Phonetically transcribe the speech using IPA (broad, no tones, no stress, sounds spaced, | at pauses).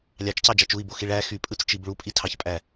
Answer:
lʲ ɑ t͡ʃ c ɑ d͡ʒ ɑ t͡ʃ u i̯ b o x i ɭ æ x y pʼ ɯ t͡s t͡ʃ i b ɭ u pʼ i tʰ ɑ ç pʼ æ